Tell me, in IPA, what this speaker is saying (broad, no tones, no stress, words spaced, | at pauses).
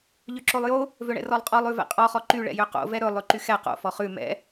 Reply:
ʎøǁolˠjo | vøɳɛ̰rɔlˠqʼɔlˠ ʉvɛ̰qʼɔ χɔǃy ɭɛ̰jøqo̰ vɛɾɵ lˠʉǃyxɛ qo̰ fɔχʉ mɛ̰